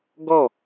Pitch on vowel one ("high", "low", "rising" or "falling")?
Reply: falling